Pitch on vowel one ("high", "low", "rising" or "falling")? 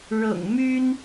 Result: low